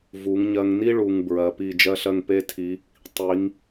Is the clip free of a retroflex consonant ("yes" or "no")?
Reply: no